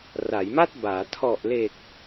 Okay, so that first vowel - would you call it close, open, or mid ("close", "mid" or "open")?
open